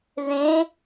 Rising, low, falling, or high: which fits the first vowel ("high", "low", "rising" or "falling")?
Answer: rising